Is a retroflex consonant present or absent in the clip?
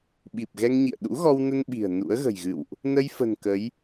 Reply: absent